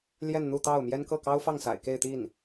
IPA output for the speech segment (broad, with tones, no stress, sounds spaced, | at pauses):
l j ɛ˥˧ n n̪ u˥˧ t̪ ɑ˥˩ ʊ̯ m j ɛ˥ n k ɤ˥˩ k ɑ˥ ʊ̯ f ɑ˥˩ ŋ s a̰˨˩ ɪ̯ k e˥˧ ɪ̯ t̪ i˥˩ n